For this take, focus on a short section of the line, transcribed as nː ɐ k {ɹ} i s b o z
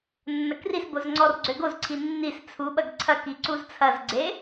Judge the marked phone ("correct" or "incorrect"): incorrect